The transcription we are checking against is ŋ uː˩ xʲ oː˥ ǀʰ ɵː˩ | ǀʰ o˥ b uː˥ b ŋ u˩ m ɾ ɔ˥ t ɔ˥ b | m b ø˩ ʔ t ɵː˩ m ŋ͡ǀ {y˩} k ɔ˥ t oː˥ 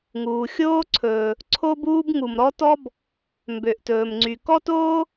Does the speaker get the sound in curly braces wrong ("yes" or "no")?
no